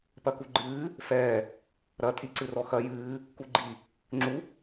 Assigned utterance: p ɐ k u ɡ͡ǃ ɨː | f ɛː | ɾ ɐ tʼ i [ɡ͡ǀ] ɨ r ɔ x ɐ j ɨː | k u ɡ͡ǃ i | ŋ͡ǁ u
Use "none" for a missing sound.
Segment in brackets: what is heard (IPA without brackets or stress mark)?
ǀ